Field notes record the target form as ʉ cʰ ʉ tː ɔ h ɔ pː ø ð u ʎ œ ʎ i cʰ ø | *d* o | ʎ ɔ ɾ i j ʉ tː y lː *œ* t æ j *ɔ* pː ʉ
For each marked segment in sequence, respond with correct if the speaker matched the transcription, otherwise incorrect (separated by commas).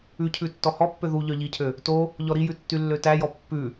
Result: incorrect, incorrect, correct